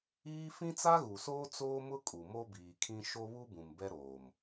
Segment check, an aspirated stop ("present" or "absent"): present